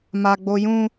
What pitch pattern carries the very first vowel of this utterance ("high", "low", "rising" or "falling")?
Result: high